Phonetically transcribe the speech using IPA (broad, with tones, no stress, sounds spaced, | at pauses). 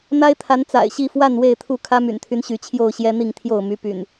n̪ a˦ ɪ̯ t̪ʰ a˨˦ n t͡s a̰˨˩ ɪ̯ ɕ i˥˨ f w a˥˨ n w e˥˨ ɪ̯ t̪ʰ u˥˨ kʰ ä˦ m y̰˨˩ n t̪ʰ y˦ n ɕ y˨˦ t͡ɕʰ j o˥˨ ʊ̯ ɕ j ɛ˦ n̪ i˥˨ ŋ t̪ʰ j o˥˨ ʊ̯ m y˦ p y̰˨˩ n